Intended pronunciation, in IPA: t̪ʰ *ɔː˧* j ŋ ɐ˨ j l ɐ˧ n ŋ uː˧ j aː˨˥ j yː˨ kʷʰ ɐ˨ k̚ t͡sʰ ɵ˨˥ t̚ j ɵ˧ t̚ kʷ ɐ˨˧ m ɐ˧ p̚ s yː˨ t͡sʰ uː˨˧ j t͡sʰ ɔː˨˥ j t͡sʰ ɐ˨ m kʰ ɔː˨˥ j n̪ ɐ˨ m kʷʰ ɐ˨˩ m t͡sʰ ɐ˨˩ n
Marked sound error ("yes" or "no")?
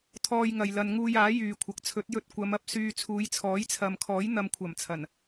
no